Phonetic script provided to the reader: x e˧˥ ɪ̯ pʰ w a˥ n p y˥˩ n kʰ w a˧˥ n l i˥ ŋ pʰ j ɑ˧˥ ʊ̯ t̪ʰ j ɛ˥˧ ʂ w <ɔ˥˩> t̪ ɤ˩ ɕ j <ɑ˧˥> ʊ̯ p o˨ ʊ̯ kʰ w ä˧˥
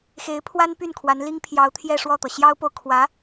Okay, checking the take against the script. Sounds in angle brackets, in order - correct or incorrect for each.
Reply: correct, incorrect: ɑ˥

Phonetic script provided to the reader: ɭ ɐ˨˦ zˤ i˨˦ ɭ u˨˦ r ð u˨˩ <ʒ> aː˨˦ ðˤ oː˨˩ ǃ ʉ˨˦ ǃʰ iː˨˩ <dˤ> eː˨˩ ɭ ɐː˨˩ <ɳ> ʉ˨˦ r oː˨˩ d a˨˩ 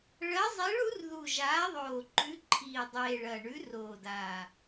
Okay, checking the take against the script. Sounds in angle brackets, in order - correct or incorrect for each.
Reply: correct, correct, correct

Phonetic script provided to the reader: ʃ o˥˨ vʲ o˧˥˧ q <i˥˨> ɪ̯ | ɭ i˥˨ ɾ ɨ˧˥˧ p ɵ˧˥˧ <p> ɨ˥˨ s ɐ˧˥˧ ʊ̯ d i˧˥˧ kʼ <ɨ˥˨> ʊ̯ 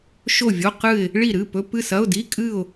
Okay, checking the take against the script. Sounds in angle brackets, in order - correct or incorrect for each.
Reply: incorrect: ɨ˥˨, correct, correct

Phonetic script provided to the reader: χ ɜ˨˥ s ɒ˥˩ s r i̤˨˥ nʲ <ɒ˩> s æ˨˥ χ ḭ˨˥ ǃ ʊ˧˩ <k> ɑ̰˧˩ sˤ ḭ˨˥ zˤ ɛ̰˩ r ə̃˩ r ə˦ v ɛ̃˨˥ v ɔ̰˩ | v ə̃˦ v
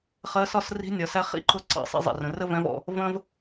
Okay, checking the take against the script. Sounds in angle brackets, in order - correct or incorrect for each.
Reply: correct, incorrect: ǀ

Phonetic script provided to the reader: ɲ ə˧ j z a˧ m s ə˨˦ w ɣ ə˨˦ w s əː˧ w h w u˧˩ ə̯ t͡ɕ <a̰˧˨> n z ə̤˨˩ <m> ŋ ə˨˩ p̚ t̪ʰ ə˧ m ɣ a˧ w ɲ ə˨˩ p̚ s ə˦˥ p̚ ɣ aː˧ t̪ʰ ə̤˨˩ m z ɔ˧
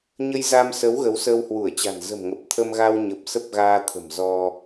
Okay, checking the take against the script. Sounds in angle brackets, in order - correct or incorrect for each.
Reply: incorrect: a̤˨˩, correct

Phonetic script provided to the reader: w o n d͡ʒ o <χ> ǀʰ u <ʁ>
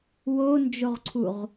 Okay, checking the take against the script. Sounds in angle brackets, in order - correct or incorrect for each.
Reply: incorrect: ʁ, correct

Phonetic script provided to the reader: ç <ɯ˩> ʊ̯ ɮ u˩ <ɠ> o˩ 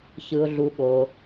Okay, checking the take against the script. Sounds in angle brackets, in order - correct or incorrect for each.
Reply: correct, correct

